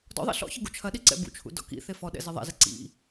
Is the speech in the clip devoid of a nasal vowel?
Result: yes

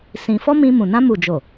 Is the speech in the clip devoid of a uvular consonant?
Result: yes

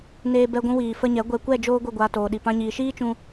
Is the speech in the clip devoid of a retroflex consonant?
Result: yes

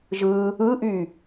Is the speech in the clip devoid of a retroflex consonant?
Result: yes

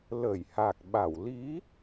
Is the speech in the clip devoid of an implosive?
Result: no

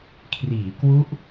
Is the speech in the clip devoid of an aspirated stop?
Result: no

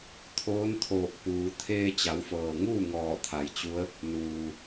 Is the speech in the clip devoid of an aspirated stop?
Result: no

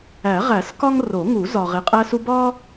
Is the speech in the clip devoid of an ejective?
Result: no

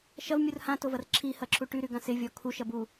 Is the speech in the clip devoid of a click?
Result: no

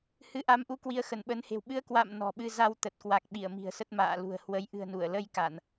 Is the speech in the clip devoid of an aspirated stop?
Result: yes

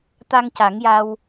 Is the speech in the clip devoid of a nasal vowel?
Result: yes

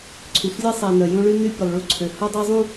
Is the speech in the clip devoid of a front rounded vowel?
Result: no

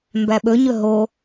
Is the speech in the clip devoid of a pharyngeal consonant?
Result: yes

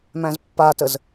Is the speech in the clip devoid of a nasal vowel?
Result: no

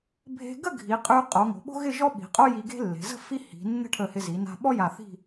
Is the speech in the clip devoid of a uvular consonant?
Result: no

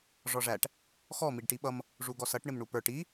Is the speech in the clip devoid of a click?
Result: yes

